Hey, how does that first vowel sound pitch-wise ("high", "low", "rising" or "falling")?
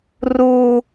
high